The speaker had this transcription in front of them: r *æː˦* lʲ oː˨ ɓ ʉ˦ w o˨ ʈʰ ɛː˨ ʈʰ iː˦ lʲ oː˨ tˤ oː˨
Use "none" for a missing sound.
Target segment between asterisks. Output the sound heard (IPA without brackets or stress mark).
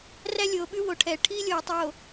æ˦